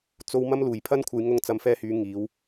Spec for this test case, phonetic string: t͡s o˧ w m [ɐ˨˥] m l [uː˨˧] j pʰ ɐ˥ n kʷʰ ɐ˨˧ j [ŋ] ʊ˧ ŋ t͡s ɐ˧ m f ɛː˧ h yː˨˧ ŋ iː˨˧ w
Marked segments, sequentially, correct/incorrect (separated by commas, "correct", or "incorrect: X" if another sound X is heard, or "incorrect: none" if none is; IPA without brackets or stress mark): incorrect: ɐ˧, incorrect: uː˨˩, correct